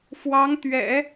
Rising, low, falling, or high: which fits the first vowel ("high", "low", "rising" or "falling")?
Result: rising